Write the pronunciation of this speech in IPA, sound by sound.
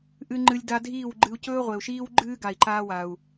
ʔɨ˧ŋ͡ǃɨ˧lʲ da˧ dʱiː˦˨wɡ͡ǃɨ˧u̯ cɵː˦ʁʷe˨u̯ʃiː˦w ɡ͡ǃɨː˦ ɡa˨i̯ǃaː˧ wa˨u̯

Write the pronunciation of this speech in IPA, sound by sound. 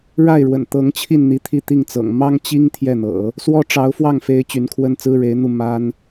ɻa˥˩ɪ̯ɻwə̰˨˩n t̪ɤ˧˥ŋt͡ɕʰi˥˩nn̪i˧˥ t̪ʰi˥˧ t̪i˥˩ŋt͡sɤ̰˨˩ŋ mɑ˥ŋt͡ɕi˥ŋ t̪ʰjɛ˥˩n̪ɤ̰˨˩˦ | swɔ˥ʈ͡ʂɑ˧˥ʊ̯fwɑ˥˩ŋfe˧˥ɪ̯ t͡ɕy˧˥nkʰwə˥nt͡sɹ̩˥ɻe˧˥ɪ̯ n̪u˥˩ma˥n

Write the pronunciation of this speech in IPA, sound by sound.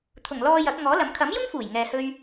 t̪ʰʊ˨˩ŋlɔː˧ jɐ˨˥k̚ ŋɔː˨˥lɐ˨˥m kʰɐ˨˥mjʊ˥ŋfuː˨˩j ŋɛː˧hɵ˥ɥ

